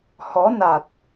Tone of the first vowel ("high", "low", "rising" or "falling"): rising